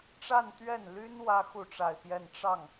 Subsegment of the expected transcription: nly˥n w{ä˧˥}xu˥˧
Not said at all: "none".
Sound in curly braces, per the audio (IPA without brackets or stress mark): ä˥